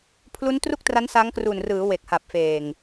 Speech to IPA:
pʰlu˦˥ntru˥˩k̚tra˦˥n sa˦˥ŋkru˨˩nrɯː˩˦ we˨˩k̚ha˨˩p̚feː˨˩ŋ

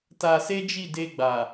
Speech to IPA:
ta˧se˦d͡ʒi˦˨ de˧ɡ͡ba˨

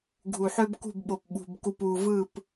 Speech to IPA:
ɡʱu˨ħø˦bkṳ˦˨bɓo˨p ɓṳ˨b ku˨p u˨vɯ˦˨p

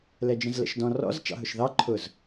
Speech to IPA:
lɛd͡ʒə̃zlə̰ʃdɔ̃ rɔ̰z t͡ʃɑ̰ɦʊʃðɑ ǃʰʊz

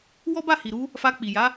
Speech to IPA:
wɔ˦ba˦˨hi˨ɾu˧ | fa˧k͡pi˨ja˨˦

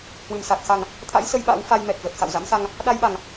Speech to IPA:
hwɨ˧˩msa˨˩k̚xa˨˩ŋ | t̪ʰa̰˧˥jsə˧j ɓa̰˧˥w fa˧jmɛ˨˩k̚zə˨˩t̚ xa̰˧˨wza̰˧˥msa˧ŋ | ɗa˧jɓa˨˩ŋ

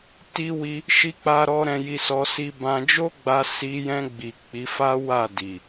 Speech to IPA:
ti˦wi˦ | ʃi˦k͡pa˦ɾɔ˦ ɾɛ̃˧ji˧sɔ˧ si˧bã˧d͡ʒo˦ɡ͡ba˧ si˧jɛ̃˧ɡ͡bi˨ k͡pi˨˦fa˦ wa˦˨di˨

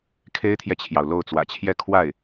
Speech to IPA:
kʰe˥ɪ̯t̪ʰjɛ˨t͡ɕʰjɑ˩ʊ̯ lo˥˩ʊ̯t͡swä̰˨˩t͡ɕʰjɛ˥˧ kʰwa˥˩ɪ̯

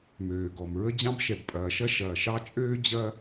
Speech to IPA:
møː˩ɡɔ˩mɹə˥ d͡ʑɑ̃˥bʃɛ˩bpʼɐː˩ʃɐ˥ ʃɐː˩ʃɑ˥t͡ʃʼøː˥ d͡ʑɐ˥

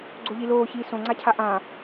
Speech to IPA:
ɡ͡ǀoʎiloːçiː sõŋ͡ǀacʰa ʔã

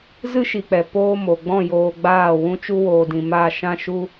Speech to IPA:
zɨ˦ʃi˨k͡pɛ˨ poː˦mo˨ ɡ͡bɔ̃˦˨joː˨ ɡ͡baː˦˨ wũ˦t͡ʃu˦woː˨dĩ˨ ma˦˨ ʃã˧ ʃu˦

